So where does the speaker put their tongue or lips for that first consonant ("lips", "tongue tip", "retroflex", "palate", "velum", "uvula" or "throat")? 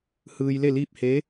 throat